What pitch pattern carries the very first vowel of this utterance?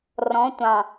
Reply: rising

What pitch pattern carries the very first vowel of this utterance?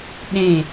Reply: falling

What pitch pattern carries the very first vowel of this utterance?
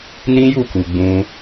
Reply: high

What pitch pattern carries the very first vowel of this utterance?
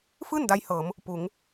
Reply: falling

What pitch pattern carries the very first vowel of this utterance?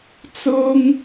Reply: high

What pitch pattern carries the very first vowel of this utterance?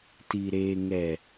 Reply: low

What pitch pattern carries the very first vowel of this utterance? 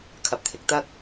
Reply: low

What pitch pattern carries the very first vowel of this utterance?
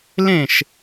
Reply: falling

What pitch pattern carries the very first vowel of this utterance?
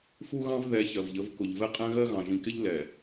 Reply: high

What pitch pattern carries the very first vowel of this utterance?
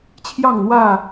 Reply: falling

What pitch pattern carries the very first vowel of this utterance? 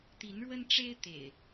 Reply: rising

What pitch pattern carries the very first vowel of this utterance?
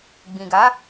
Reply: low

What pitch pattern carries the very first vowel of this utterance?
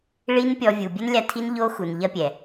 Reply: high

